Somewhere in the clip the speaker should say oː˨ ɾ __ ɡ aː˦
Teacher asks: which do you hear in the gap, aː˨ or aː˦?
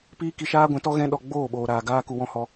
aː˨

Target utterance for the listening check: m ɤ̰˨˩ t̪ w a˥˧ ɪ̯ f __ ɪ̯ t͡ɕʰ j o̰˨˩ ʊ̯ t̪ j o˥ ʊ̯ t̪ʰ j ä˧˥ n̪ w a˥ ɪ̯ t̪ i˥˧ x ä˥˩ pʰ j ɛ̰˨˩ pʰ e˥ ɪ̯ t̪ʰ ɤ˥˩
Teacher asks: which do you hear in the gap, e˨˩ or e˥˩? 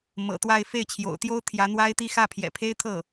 e˥˩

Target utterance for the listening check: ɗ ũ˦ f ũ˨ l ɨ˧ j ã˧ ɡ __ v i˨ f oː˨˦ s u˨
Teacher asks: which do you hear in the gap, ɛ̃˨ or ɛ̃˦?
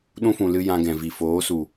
ɛ̃˨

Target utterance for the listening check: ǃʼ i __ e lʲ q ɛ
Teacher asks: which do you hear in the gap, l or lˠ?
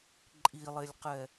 lˠ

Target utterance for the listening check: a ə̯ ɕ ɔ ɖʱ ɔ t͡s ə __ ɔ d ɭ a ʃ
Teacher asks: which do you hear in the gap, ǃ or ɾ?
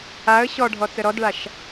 ɾ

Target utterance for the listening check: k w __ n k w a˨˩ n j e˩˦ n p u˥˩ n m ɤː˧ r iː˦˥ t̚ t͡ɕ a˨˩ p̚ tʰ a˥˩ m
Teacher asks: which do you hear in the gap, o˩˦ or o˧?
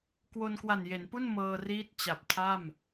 o˧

